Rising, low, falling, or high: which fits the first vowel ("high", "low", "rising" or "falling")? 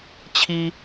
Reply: high